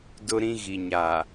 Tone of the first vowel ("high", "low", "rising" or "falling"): high